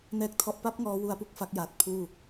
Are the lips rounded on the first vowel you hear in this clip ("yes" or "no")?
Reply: no